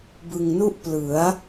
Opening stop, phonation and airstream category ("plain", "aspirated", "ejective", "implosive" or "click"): plain